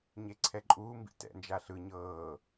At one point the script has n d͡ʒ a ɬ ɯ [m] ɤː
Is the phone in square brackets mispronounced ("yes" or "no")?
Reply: yes